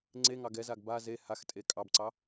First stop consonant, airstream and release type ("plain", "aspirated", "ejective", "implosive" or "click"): click